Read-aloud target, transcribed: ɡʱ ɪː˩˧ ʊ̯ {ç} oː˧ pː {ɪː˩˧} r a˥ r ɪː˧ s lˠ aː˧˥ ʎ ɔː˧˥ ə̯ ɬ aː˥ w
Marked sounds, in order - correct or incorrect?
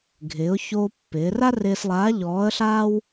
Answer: correct, correct

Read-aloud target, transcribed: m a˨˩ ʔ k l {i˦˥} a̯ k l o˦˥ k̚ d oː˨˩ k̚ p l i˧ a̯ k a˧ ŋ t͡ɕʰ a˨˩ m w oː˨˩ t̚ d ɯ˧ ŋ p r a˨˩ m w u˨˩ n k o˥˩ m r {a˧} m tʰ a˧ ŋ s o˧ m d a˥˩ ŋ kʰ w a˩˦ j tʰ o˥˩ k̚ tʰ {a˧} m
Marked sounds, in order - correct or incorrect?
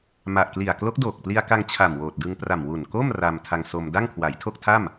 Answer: incorrect: i˨˩, correct, incorrect: a˥˩

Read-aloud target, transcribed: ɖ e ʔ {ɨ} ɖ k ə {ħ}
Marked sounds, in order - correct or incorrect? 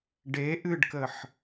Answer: correct, correct

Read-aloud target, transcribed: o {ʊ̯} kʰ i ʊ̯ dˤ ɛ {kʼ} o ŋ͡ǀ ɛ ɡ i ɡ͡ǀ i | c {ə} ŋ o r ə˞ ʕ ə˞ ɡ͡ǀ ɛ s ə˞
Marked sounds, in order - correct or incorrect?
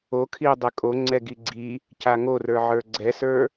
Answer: incorrect: none, correct, incorrect: a

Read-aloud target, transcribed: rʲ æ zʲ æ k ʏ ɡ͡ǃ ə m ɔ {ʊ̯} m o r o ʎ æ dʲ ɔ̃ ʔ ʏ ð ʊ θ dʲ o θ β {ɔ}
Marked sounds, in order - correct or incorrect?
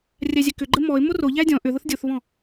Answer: incorrect: ɪ̯, incorrect: ɔ̃

